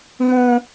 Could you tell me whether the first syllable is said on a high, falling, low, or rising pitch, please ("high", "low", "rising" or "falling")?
high